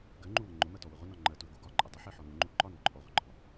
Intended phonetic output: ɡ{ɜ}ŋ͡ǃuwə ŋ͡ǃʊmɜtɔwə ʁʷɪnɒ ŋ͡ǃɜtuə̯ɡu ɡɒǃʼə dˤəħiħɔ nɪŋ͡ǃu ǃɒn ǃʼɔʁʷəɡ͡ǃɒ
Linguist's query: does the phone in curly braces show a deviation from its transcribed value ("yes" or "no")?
no